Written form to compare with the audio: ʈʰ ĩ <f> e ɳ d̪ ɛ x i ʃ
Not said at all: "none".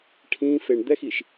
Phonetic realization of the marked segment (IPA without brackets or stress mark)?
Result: f